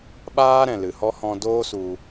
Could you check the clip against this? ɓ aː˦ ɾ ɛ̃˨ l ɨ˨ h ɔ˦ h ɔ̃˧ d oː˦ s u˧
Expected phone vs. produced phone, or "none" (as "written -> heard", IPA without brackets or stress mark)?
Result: none